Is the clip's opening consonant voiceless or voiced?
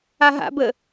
voiced